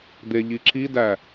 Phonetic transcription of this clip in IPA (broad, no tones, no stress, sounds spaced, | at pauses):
d̪ e ʎ i ǁ i d æ